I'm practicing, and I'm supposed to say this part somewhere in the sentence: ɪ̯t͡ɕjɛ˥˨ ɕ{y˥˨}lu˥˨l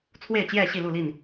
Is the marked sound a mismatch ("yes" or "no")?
yes